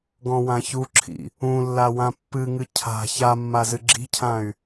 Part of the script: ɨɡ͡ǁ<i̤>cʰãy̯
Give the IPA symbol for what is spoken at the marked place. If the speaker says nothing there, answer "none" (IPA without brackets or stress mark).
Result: i̤